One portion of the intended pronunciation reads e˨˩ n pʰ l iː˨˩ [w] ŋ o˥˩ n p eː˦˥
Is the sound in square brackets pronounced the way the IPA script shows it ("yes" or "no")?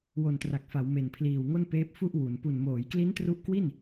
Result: yes